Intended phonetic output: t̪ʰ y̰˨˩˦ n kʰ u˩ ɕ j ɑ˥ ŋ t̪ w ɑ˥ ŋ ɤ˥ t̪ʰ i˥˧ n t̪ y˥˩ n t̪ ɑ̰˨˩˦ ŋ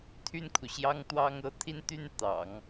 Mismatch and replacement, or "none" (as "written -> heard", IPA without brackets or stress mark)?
y̰˨˩˦ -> y˥˩